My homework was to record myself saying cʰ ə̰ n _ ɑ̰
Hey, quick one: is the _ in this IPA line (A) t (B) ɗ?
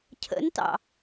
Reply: A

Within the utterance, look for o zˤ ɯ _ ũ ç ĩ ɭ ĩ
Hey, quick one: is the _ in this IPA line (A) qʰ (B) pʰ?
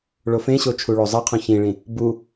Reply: A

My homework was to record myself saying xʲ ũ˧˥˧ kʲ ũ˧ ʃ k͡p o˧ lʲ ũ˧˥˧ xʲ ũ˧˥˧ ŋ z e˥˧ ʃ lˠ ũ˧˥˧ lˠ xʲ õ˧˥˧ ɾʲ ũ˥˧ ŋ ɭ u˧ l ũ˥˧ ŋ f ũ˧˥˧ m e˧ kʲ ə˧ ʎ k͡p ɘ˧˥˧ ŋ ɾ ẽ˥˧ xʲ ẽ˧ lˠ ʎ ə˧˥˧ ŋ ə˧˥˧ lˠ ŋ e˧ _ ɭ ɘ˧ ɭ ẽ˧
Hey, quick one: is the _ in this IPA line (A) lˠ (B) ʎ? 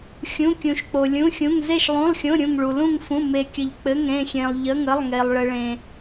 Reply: A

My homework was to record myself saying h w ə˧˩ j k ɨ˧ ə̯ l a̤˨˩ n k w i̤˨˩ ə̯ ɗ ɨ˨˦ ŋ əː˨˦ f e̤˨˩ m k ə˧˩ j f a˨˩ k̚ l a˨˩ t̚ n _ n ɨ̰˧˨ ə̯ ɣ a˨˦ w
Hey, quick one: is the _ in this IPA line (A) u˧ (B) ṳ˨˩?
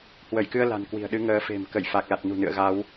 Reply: B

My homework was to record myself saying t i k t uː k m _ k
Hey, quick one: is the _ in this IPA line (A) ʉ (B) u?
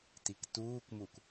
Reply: B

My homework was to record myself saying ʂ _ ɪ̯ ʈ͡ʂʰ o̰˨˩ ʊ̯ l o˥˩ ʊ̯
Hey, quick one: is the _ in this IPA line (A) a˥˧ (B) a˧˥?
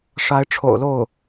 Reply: B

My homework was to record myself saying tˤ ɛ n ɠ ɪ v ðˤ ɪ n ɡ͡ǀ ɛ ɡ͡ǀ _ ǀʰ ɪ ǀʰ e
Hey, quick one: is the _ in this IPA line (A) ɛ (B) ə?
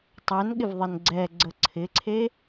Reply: B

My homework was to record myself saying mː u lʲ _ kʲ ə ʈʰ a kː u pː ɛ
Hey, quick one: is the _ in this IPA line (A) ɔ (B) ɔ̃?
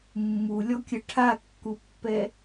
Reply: A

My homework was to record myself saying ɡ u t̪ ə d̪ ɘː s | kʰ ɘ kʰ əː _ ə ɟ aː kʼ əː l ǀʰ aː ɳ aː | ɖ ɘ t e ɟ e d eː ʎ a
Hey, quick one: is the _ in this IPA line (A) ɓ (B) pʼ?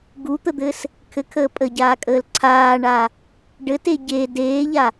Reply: B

